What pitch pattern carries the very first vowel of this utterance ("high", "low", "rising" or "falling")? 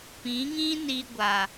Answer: rising